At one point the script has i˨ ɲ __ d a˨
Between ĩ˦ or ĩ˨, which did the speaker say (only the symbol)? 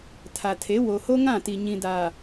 ĩ˨